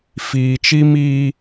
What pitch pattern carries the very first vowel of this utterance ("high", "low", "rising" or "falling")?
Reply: low